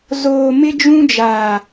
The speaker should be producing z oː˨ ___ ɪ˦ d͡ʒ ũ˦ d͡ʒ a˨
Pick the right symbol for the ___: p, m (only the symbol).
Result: m